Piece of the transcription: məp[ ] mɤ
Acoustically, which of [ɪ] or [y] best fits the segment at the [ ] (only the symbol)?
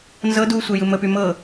y